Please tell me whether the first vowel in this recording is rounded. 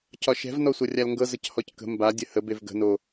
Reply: yes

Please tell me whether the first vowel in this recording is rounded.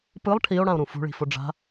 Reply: no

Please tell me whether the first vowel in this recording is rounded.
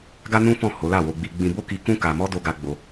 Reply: no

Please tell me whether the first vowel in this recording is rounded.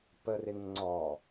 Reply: no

